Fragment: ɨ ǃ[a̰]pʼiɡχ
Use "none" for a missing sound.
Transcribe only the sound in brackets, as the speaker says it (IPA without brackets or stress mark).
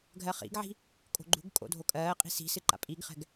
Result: a̰